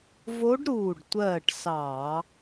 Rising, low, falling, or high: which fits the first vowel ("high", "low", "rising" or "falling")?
rising